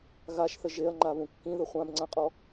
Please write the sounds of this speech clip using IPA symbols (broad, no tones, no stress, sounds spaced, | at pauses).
ɣ a ʃ θ ə ʒ e ɐ̯ ŋ͡ǃ a β ũ kː ĩ ð ə χʷ ã b ŋ͡ǀ ã qʼ ɔ